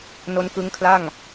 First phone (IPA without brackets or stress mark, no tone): n